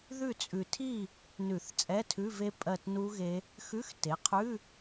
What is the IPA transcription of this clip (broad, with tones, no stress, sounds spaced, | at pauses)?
ð ʉ˦˨ t͡sʼ ʉ˨ tʰ i˦˨ | n ʉ˨˩˦ θ t͡sʼ ɛ˧˥˧ tʰ ʉ˧˥˧ v e˦˥ pʼ ɜ˦˨ t n u˦˥ ɣ e˦˥ | x ʉ˧˥˧ x t e˩˥ qʰ ʉ˧˥˧